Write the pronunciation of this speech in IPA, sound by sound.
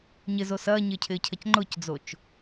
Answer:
ɲ ɪ z o s ɐː ɲ ɪː cʰ ɪː cʰ ɐ c ŋ͡ǃ ʊ c d͡z o t͡ʃ

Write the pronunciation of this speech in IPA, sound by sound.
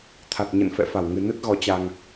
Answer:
t̪ʰ a˨˩ t̚ ɲ ə̰˧˨ n f ɛ̰˧˨ f a˧˩ w ŋ ɨ˨˩ n ə˦˥ t̚ ɣ ɔ˨˦ t͡ɕ a˧ ŋ

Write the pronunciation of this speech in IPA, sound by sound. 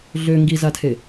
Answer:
ɮ ø ŋ ɡ i z a tʰ e

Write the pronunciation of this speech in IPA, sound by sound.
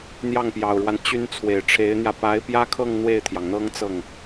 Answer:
n̪ j ɑ˥˩ ŋ p j ɑ˨˩ ʊ̯ ɻ w a˦ n t͡ɕ y˥ n t͡sʰ w e˨˩ ɪ̯ ʈ͡ʂʰ e˧˥ ɪ̯ n̪ j ä˧ p a˧˥ ɪ̯ p j ä˥ kʰ ɤ˥˧ ŋ n̪ w e˥˩ ɪ̯ t̪ʰ j ɑ˩ ŋ n̪ ɤ˥ ŋ t͡s ɤ˥˩ ŋ

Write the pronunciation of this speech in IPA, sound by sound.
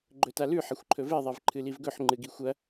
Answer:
ɡ͡ǃ ɵ t a l ʉ ħ ɐ xʷ ǃʰ ɵ v e ðˤ e v ǃʰ ɨ l i v ɡ ɵ ħ ŋ͡ǃ ɨ ɡ i xʷ ɐ

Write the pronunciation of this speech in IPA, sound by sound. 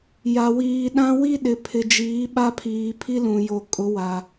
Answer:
j a˨ w iː˨ ɗ ã˦ w i˦ ɗ ɪ˨ pʰ ɪ˨ d͡ʒ iː˨˦ ɓ a˦ pʰ iː˨ pʰ i˦ l ũ˨ j o˨ kʼ ʊ˨˦ w a˨

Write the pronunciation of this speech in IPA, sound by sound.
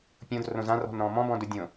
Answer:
pʲ õ d r õ z ã r ɔ̤ n ɾ ɔ̃ː m ɔ̃ b ɔ̃ d u dʲ õ

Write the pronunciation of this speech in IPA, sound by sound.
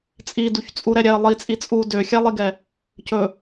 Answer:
t͡sʼ i d u ç t͡sʼ u ɾ ɛ ɾʲ ɛ ə̯ lˠ i t͡sʼ i t͡sʼ u d ø xʲ ɛ lˠ i ɡ ɛ | c ɵ

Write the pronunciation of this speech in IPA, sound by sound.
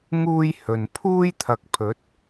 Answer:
ŋ uː˥ j h ɵ˨ n pʰ uː˥ j t̪ʰ ɐ˨˥ k̚ pʰ ɵ˨˥ t̚

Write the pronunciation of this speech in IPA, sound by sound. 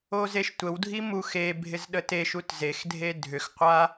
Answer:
o z e ʃ tʷ ə w dʱ i m u x e bʱ ɪ z ɗ ə t e ʃ u t z e x dʱ e dʱ ʏ x qʷ a

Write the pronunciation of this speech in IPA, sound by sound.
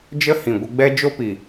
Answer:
d͡ʒ ə˦ h ĩ˨ ɡʷ ə˧ ɡ͡b ɛ˦ d͡ʒ o˦ p i˨

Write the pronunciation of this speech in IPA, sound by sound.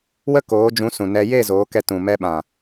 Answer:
w ə˦ k oː˨˦ d͡ʒ ũ˨˦ s ũ˨ n ɛ˧ j e˦˨ z oː˨˦ k ɛ˧ t ũ˨ m ɛ˧ ɓ ã˨

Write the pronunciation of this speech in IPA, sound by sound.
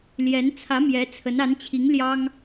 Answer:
l j ɛ˧˥ n t͡sʰ ä˧˥ m j ɛ˧˥ t͡sʰ ə˧˥ n a˧˥ n t͡ɕʰ i˧˥ ŋ l j ɑ˥ ŋ

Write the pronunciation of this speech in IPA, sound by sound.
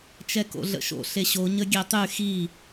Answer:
t͡ʃ ɛ k o̰ ɮ ə̰ ʃ o̰ ɬ e ɕ o ɲ ə ɡʲ e tˤ y x i

